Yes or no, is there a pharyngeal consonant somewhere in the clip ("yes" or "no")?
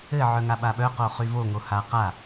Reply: yes